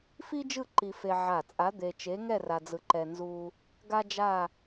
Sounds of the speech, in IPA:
fi˥d͡ʒɯ˥˧ ǃi˧fe˧ ʕa˧˩ t͡sʼa˧˥d̪e˧t͡ʃe˧˥ŋɛ˥˧ ra˧d͡zɯ˧ǃɛ˧ nzu˧ | ɡa˥d͡ʒa˥˧

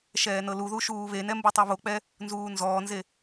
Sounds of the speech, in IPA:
ʃɛːnɤluðu ʃuːβenɛ mbutˤoβok͡pɛ | nzuːnzɔːnze

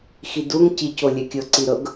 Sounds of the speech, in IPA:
xiduŋ cicolʲɛkʲɤ ǀiɾɤɡ

